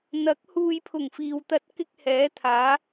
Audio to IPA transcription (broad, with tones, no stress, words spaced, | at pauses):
n̪ɐ˨˥k̚ huː˨jpʰʊ˨˩ŋ fiː˨wt̪ɐ˥t̚ kɪ˥k̚hɛː˨˥ t̪ʰaː˨˥